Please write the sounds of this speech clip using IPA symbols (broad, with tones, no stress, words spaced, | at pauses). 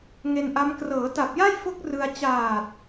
ŋe˧nʔa˦˥m krɤː˩˦ ta˨˩p̚ja˥˩jfo˦˥k̚ rɯ˧a̯ t͡ɕaː˨˩t̚